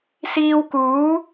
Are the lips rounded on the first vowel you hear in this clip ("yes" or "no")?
no